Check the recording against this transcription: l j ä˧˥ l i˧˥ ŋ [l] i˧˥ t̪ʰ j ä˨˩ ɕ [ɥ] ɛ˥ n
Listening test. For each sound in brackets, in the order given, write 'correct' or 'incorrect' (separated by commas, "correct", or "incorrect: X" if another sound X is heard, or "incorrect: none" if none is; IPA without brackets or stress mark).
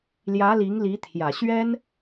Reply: correct, correct